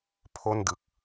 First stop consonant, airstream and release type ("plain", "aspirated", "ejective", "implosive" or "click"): aspirated